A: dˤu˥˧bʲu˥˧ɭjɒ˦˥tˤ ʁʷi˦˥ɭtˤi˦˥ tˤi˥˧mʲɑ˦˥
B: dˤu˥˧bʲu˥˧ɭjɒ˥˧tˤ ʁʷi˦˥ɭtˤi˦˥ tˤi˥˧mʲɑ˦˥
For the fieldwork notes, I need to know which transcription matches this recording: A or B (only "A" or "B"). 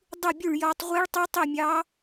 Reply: A